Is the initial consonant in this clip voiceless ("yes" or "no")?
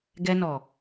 no